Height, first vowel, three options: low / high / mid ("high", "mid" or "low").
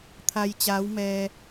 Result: low